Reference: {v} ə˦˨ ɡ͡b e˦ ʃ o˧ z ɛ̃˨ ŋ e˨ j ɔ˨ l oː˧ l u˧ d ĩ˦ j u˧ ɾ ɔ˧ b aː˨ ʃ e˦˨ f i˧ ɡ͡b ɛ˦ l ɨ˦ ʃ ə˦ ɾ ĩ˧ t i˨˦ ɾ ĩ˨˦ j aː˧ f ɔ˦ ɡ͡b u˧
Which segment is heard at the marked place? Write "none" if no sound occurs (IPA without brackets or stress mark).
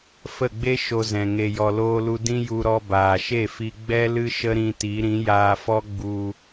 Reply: f